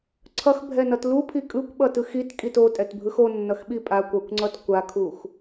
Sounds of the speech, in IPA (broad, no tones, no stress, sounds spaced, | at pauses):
ǀʰ ʌ x bʱ ɛ n ʌ t l u pʰ i kʼ ɯ kʷ ɓ ʌ t ɯ x i t kʼ i t o tʼ ɛ t bʱ ɯ x o nː ʌ x ɓ i pʼ a kʷ a kʷ ŋ͡ǀ ʌ t kʷ a kʰ u x